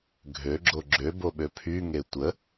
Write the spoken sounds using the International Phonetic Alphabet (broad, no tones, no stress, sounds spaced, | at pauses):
ɡʱ ø ɡ͡ǁ o ɡ͡ǁ ø b o ɓ ø pʰ y ŋ e tʷ ə